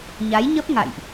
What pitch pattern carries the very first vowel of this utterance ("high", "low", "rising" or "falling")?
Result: rising